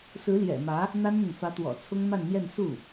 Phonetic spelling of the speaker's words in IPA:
s ɹ̩˧˥ l j ɛ̰˨˩ m ä˧˥ | n̪ a˥ n n̪ ʊ˨ ŋ f ä˧˥ t̪ w ɔ̰˨˩ t͡sʰ ʊ˥ ŋ m a˥˧ n n̪ j ɛ˥˧ n s u˥˩

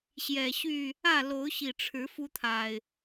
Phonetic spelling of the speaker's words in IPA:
ɕ j ɛ˨˩ ɕ y˥˨ | ä˥˨ l o˨˦ ʊ̯ ɕ i˨˩ ʈ͡ʂʰ ɻ̩˨˦ f u˦ t̪ʰ a˨˩ ɪ̯

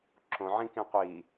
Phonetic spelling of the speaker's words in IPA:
ǁ õ ʕ ĩ k ĩ qʷ i

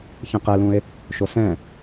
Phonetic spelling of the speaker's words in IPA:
ç ɛ̃ q ɛ l ũ e̯ | ʃ o s ɛ̃

